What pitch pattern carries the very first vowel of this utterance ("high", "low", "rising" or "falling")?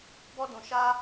high